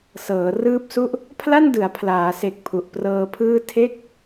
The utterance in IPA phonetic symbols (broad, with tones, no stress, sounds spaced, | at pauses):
s ɤː˩˦ r ɯː˦˥ p̚ s u˥˩ ʔ | pʰ l a˥˩ n d ɯ˩˦ a̯ pʰ l aː˩˦ s e˨˩ k̚ pʰ u˨˩ ʔ p r ɤː˧ pʰ ɯː˥˩ tʰ e˥˩ k̚